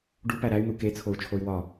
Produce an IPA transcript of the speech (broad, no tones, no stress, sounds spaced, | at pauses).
ɖ u p æ ɾ æ y̯ n̪ u k e t͡sʰ o u̯ t͡ʃʰ o y̯ w ɒ